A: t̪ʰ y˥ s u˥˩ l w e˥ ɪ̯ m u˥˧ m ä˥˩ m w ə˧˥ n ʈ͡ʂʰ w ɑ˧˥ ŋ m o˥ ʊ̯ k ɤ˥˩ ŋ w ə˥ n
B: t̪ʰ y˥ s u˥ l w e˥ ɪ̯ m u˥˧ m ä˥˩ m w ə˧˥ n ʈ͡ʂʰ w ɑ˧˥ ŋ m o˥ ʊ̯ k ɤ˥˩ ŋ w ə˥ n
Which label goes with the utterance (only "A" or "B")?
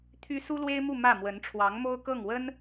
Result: B